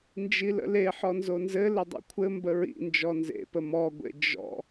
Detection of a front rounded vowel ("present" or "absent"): absent